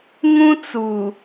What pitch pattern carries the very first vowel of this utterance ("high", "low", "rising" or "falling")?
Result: high